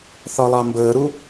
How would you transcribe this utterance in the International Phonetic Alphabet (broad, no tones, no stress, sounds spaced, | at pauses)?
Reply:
θ ɒ lˠ ɑ m b əː ɾ u